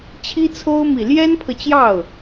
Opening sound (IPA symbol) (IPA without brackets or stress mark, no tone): t͡ɕʰ